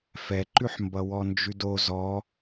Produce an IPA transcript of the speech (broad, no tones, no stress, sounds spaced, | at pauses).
f ɛ ǃ ʉ ħ m b ʌ w ɔ n d͡ʒ ʉ d o z ɔ